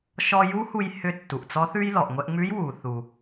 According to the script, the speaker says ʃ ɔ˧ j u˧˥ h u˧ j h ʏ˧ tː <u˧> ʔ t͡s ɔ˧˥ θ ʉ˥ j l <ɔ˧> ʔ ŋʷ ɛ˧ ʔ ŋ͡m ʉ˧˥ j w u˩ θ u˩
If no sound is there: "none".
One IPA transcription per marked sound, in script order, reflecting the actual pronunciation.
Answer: u˩, ɔ˩

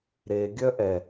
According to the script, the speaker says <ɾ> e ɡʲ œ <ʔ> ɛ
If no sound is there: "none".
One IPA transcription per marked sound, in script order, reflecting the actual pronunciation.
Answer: ɾ, ʔ

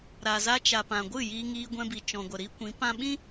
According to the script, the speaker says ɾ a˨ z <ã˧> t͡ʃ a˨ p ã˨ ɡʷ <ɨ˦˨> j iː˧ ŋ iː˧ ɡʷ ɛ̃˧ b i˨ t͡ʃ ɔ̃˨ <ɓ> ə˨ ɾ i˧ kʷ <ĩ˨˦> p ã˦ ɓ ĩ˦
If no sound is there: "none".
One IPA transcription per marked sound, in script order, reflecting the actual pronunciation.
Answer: a˧, ɨ˦˨, ɡʷ, ĩ˨˦

